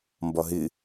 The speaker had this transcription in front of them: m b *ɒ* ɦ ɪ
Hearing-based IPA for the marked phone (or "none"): ɒ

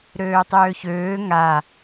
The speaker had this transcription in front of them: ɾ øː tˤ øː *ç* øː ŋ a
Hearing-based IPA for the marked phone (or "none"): ç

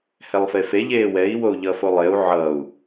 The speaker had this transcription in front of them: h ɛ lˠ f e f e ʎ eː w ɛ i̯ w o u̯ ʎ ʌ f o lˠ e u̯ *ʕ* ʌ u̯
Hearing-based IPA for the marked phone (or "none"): ʕ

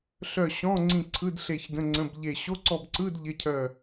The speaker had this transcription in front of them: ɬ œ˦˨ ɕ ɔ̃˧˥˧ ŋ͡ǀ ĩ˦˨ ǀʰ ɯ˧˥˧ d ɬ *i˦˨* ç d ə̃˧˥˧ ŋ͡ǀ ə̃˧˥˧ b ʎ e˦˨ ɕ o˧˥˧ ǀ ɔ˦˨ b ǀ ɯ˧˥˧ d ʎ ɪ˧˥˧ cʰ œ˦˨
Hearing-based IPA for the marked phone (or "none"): e˦˨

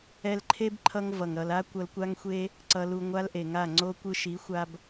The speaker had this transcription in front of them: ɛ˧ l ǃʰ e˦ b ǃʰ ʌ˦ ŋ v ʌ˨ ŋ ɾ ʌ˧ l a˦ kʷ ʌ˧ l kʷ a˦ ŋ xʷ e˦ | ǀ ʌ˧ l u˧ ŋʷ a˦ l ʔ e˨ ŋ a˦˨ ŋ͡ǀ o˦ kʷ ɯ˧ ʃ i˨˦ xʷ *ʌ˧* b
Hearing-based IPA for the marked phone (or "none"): a˧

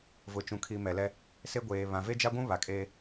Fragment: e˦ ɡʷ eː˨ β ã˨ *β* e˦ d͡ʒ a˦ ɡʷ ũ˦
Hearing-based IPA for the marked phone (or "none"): v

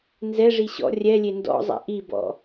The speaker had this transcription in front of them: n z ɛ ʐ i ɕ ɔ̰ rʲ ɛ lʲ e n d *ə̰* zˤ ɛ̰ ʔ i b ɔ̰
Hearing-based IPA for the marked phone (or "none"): ɔ̰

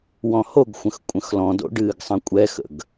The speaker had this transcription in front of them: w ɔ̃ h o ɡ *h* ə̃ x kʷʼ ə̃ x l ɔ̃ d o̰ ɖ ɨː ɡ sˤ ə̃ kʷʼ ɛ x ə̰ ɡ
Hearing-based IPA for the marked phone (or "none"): xʷ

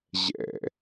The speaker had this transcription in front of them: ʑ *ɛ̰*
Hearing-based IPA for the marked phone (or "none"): ɛ̰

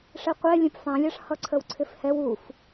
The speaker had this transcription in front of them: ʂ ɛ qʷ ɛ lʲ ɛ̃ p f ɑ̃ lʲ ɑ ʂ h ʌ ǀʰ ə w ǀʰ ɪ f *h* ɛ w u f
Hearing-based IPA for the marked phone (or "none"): h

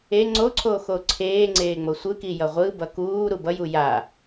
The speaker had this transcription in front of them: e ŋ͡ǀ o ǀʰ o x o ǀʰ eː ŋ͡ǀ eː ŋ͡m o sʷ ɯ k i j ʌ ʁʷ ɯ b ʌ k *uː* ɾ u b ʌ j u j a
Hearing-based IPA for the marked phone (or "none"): uː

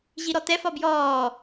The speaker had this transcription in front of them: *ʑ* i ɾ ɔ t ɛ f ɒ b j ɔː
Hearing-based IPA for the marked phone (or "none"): ʑ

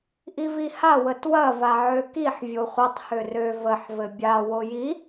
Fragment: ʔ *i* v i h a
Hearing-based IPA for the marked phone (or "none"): i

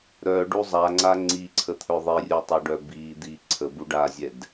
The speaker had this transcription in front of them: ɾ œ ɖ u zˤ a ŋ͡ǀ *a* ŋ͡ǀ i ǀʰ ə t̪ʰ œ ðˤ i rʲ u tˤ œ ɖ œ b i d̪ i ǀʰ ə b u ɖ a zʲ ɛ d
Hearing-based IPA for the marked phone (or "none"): a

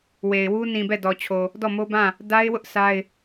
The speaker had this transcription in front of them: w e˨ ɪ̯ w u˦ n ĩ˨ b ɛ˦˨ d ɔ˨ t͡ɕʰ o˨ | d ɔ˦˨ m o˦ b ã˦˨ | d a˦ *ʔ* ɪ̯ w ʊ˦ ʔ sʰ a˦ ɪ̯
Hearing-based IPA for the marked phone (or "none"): none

